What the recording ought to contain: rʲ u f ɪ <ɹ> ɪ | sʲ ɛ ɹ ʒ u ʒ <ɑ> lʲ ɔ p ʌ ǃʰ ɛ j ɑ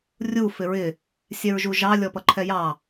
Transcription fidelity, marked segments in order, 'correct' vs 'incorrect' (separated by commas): correct, correct